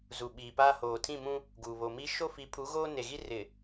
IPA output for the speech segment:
z u˨ ɓ iː˨ p aː˦ h oː˨ tʰ ĩ˦˨ m ũ˦ | ɡ uː˨ β o˨ m i˦ ʃ o˦ f i˨˦ pʰ u˨˦ ɣ oː˦ n e˨ ɣ i˦ r ɪ˨

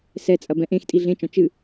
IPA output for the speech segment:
s ɛ t͡sʼ ɐ b ɛ̃ ʔ ẽ x tʼ i ɮ ẽ t͡ʃ ɔ̃ t͡ʃ ɨ

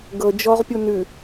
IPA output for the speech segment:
ɡ ɤ d͡ʒ ɔ ʁ pʲ u n ʉ

